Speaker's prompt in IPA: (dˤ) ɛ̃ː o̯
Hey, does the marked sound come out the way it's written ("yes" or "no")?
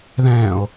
no